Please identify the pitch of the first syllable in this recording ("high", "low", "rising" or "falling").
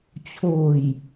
low